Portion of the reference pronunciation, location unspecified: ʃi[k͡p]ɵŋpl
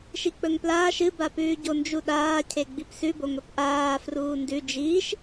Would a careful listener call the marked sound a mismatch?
no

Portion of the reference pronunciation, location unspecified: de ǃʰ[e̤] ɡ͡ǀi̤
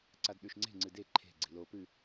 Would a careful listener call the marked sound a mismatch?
no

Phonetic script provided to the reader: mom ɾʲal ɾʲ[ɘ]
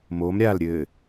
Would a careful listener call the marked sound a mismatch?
no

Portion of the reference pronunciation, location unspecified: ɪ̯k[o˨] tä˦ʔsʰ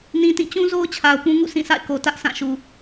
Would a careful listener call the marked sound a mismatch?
no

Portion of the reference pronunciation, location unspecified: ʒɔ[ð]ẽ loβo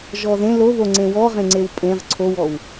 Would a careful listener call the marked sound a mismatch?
no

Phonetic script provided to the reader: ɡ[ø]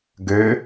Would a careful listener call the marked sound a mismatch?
no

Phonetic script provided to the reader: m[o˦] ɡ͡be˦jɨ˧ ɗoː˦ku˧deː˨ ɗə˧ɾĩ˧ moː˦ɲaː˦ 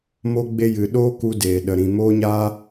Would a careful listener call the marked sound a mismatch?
no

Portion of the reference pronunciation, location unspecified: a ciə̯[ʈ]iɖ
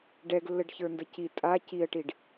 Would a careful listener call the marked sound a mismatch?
no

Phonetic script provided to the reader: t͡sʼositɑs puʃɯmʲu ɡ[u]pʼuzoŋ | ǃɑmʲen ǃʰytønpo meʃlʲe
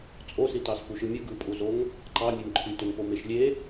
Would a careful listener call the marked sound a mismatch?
yes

